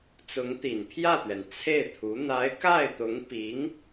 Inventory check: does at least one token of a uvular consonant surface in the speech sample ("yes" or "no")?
no